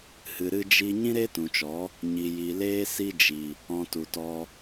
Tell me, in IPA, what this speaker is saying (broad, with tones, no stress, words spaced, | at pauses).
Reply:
hɨ˨ ɾɨ˧d͡ʒi˧ ɲĩ˦ɾe˦ tũ˨t͡ʃɔ˨˦ | ɲi˨ji˨leː˦ si˧d͡ʒi˨ | ɔ̃˨ tu˨tɔ˧